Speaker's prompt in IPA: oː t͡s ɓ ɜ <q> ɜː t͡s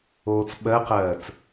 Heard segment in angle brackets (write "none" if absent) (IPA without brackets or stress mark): q